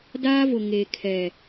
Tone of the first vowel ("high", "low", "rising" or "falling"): high